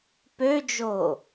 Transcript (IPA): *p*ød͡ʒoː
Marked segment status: correct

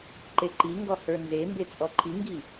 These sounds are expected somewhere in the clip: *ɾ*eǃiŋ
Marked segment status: incorrect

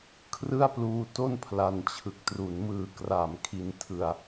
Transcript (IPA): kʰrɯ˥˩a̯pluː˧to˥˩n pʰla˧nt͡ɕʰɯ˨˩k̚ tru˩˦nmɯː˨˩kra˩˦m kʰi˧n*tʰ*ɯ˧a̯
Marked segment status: correct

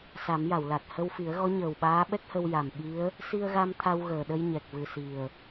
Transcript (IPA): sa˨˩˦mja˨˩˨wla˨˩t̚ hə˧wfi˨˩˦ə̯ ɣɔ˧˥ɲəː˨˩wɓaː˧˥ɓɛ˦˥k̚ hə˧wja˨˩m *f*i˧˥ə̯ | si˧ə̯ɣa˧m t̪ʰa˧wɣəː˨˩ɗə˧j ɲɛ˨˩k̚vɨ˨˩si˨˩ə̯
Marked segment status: incorrect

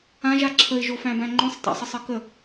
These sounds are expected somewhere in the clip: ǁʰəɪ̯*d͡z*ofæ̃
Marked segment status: incorrect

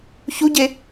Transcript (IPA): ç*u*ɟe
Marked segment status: correct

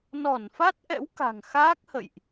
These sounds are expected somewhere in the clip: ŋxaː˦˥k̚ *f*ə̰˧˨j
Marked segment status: incorrect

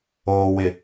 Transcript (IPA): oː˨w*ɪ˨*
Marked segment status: correct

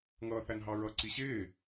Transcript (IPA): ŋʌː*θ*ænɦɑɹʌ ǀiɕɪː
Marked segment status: correct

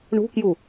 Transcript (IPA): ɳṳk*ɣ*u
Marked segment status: incorrect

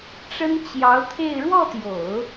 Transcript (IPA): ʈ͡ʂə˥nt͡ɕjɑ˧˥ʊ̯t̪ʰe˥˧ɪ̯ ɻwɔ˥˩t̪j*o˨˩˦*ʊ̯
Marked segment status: correct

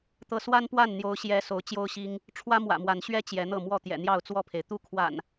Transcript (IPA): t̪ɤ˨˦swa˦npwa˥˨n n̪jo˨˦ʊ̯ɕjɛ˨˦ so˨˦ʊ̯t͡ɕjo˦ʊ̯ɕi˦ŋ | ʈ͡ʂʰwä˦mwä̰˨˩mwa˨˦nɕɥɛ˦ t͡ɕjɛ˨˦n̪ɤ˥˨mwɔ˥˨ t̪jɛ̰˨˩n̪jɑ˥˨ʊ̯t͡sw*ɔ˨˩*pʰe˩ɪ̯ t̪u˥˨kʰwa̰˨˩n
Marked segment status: incorrect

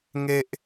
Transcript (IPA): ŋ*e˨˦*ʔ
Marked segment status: incorrect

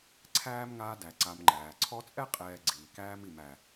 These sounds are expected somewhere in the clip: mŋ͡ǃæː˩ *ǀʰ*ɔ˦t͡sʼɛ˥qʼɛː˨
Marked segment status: correct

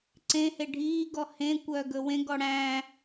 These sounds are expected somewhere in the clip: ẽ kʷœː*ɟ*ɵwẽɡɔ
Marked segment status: incorrect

